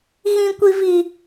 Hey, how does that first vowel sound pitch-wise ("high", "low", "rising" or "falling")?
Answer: high